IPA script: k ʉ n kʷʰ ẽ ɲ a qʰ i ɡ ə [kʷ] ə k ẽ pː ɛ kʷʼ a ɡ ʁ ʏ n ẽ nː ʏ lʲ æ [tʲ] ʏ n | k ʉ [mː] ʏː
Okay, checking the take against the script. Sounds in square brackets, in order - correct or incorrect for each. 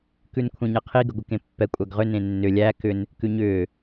incorrect: ɡʷ, incorrect: k, incorrect: ɲ

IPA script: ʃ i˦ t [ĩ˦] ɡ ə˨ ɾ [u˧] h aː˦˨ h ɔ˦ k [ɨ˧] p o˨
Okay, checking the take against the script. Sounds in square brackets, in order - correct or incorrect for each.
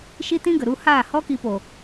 correct, correct, incorrect: i˧

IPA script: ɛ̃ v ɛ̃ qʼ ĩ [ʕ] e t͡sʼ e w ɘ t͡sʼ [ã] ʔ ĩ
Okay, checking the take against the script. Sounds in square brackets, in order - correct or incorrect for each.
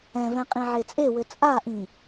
correct, incorrect: a

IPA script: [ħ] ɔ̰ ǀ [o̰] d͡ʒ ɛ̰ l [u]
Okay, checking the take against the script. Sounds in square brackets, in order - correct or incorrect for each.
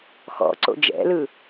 incorrect: x, correct, incorrect: ɯ

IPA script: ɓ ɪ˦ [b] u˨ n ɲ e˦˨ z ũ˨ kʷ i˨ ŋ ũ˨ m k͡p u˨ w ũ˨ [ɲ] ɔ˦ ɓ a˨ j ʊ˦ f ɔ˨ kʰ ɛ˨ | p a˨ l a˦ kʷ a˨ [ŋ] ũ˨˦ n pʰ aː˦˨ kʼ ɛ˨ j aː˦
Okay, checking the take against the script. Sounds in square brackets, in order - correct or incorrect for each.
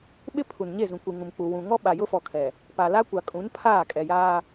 incorrect: pʰ, incorrect: ŋ, incorrect: kʼ

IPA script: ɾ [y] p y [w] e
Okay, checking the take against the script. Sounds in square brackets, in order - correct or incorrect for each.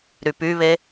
correct, incorrect: β

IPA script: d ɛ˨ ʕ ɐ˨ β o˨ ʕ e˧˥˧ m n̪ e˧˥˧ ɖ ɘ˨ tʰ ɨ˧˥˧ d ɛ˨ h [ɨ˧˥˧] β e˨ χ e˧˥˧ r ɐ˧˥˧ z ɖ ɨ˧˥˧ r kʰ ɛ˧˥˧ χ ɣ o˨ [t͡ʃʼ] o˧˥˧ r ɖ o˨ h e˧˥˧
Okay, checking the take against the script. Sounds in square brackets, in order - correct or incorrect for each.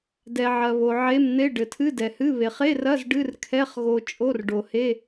correct, correct

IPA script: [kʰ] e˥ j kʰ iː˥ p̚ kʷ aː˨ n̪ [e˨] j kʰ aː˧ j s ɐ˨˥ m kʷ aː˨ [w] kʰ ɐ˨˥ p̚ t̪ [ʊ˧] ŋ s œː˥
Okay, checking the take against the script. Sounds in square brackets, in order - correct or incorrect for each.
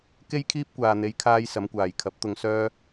incorrect: k, incorrect: e˨˧, incorrect: j, correct

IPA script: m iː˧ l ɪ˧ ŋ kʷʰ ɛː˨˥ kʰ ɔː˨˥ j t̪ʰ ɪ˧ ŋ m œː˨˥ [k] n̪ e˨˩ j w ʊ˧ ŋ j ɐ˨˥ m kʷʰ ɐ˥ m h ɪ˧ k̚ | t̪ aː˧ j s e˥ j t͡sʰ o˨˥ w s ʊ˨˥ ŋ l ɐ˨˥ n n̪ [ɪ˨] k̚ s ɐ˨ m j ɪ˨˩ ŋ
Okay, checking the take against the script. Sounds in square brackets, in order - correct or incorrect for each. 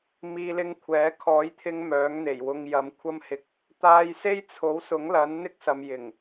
incorrect: ŋ, incorrect: ɪ˥

